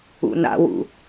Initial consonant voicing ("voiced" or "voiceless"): voiced